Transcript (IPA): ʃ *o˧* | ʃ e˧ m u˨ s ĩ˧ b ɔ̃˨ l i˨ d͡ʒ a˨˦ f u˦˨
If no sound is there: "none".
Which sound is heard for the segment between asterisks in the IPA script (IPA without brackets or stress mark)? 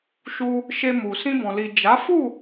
u˧